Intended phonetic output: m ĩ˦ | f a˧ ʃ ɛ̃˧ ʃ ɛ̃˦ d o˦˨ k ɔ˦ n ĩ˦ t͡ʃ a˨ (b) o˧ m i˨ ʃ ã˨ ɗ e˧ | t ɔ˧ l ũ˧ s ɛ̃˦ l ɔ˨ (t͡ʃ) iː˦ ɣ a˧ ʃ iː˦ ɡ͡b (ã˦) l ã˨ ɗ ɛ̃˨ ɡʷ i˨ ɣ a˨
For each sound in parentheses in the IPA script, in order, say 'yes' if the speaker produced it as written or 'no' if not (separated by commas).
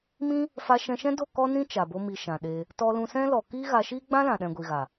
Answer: yes, no, yes